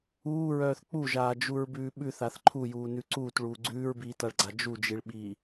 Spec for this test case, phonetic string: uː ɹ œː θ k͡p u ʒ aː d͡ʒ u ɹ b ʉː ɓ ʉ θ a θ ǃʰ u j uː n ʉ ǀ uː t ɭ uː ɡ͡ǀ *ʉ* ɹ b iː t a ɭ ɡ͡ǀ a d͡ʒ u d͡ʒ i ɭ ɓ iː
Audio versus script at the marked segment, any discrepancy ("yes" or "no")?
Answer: yes